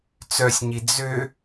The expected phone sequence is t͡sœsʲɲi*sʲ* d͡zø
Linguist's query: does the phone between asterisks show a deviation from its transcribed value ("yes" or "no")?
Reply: yes